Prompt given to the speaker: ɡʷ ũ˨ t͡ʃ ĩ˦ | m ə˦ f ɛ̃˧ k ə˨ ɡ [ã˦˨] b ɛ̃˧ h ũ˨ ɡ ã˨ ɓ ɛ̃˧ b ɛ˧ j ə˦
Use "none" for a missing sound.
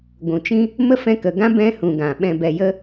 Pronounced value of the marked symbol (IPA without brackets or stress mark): ã˦